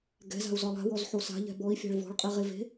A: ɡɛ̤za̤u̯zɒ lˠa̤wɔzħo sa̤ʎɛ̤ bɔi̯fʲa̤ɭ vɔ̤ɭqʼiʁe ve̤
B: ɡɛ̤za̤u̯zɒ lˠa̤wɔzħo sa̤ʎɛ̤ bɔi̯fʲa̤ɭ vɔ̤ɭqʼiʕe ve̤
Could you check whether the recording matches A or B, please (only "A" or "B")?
A